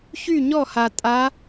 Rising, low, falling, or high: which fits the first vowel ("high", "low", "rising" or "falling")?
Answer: falling